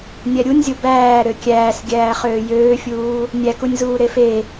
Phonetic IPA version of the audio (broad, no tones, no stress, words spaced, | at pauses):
nʲæɾʲunʲzʲo bæː ɾøkʲæːs ɡʲæːχøːjøːfʲuː | nʲækunʲzuː ɾefe